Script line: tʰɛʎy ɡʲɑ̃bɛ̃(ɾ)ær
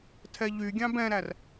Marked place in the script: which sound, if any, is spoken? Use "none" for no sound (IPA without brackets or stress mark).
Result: ɾ